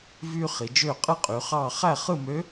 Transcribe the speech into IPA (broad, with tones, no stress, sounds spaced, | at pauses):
v yː˥ χ i˩˧ d͡ʒ øː˥˧ qʼ ɯ˥ qʼ y˩˧ χ ɑː˥˧ χ æ˥˧ χ ɯ˥˧ m ø˧˥